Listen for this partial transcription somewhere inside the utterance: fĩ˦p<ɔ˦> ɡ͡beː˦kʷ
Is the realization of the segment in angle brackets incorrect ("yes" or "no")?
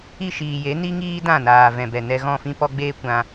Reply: no